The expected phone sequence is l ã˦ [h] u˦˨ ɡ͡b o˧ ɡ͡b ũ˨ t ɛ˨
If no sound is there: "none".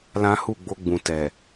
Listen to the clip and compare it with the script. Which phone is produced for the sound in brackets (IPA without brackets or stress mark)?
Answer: h